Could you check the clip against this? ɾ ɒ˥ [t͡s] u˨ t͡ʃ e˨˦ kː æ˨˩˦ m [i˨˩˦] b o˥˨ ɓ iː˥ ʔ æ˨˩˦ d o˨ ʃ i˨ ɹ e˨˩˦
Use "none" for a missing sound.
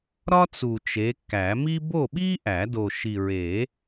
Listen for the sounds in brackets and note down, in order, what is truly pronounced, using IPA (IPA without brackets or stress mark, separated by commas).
t͡s, i˥